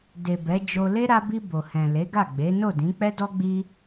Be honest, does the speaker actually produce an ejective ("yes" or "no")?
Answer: no